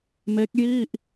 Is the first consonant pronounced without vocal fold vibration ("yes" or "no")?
no